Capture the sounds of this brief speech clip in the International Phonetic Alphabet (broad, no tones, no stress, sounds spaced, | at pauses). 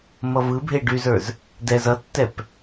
m ʌ v ɯ bʱ e ɖ y z ə˞ z | d ɛ z ʌ tː ɛ p